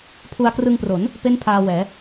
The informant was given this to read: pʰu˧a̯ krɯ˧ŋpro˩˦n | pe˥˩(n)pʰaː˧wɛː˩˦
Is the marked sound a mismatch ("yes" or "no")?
no